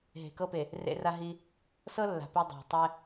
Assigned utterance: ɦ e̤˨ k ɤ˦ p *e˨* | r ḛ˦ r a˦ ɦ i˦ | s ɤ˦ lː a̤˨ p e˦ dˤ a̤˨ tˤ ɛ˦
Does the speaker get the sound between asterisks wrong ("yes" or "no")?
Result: no